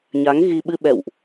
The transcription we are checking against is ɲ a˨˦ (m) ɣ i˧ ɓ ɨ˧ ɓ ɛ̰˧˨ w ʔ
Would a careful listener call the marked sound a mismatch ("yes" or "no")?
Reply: yes